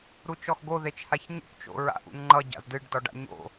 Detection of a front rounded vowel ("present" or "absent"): absent